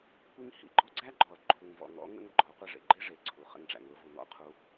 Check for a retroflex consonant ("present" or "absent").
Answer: present